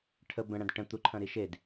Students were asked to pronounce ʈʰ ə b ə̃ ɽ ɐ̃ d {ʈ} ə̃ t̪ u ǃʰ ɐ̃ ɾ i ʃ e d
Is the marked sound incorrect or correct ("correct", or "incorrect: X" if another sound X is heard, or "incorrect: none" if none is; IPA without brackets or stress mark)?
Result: correct